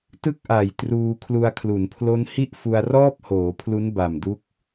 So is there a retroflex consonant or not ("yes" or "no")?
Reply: no